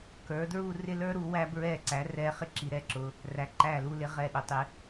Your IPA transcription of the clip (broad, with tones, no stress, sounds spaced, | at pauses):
k ə˞˩˧ d ɹ u˥˧ r ɪ˥˧ l ə˞˥ ɾ u˩˧ w æ˧ b ɹ ɛ˧˩ ǀ æ˩˧ r ɛ˧ χ ɪ˥˧ ǁ i˩˧ ɾ ɛ˧˩ ǁ ʊ˩˧ | r æ˩˧ ǃ æ˧˩ l u˧ l ɪ˩˧ ʁ ɛ˧˩ ɗ ʊ˩˧ tˤ ɪ˩˧